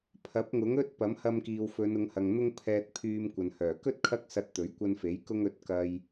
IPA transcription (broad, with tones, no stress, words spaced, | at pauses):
pʰɐ˨˥p̚ ŋʊ˨˥ŋɵ˥t̚ pɐ˨˥mhɐ˧mkiː˨wfɵ˨˧n ʊ˨˧ŋhɐ˨ŋn̪ʊ˥ŋ pʰɛː˧t̚pʰyː˧mkʷɐ˨n hœː˨˩kɵ˥t̚ kʰɐ˥k̚sɐ˧t̚t̪ɵ˨˥ɥ kʷɐ˧nfe˨˥j kʊ˧ŋɵ˨˥t̚ kɐ˧j